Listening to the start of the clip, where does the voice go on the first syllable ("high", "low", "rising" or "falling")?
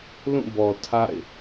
falling